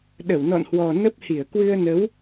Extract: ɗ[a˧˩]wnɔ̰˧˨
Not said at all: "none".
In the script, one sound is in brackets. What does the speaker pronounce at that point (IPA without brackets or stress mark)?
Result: ə˧˩